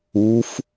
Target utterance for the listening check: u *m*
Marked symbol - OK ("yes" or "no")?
no